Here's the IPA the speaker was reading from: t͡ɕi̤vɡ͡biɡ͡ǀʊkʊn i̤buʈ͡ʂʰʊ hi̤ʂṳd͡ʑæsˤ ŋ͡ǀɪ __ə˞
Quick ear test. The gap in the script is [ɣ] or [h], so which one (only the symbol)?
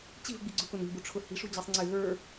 ɣ